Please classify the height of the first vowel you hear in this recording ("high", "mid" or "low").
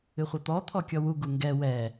high